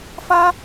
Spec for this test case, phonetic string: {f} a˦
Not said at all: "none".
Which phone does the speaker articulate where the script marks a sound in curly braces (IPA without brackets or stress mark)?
f